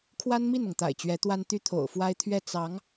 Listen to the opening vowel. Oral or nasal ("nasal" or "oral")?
oral